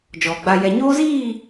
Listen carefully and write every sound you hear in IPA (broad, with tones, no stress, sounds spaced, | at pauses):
d͡ʒ ɔ˨ ɡ͡b a˨ j ɛ˨ ɲ oː˦ z iː˦˨